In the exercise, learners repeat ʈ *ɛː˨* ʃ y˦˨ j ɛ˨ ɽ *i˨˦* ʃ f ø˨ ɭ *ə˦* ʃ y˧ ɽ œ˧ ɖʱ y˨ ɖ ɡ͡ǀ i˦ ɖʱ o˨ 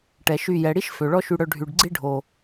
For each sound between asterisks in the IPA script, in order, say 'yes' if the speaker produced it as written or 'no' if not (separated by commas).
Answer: no, no, no